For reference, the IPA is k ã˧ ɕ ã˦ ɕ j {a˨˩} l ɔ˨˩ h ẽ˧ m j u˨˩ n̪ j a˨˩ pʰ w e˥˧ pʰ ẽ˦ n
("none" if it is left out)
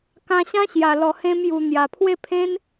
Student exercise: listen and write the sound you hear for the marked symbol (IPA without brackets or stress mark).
a˨˩